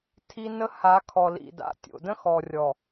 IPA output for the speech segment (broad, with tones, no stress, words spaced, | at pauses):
tʰi˦ nə˦ha˨˦ kʰɔ˨lḭ˨da̰˨tʲo̰˨ də̃˦xɔ˨rʲɔ˨